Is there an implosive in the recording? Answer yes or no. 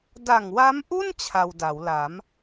no